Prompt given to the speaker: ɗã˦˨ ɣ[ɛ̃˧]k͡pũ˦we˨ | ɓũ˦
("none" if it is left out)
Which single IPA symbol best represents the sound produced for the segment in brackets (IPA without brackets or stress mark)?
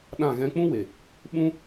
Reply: ɛ̃˧